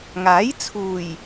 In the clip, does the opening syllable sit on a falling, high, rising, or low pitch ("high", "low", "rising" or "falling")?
rising